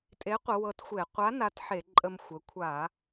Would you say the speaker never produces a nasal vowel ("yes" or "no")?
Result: yes